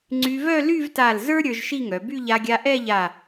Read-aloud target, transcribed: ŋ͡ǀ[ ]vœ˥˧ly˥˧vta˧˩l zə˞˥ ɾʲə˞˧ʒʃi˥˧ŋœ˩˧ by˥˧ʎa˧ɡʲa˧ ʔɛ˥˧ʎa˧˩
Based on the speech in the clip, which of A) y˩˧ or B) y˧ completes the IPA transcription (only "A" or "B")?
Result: B